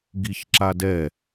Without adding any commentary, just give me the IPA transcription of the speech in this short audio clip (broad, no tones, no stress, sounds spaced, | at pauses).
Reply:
ɡ i ç ǁ a d ɛ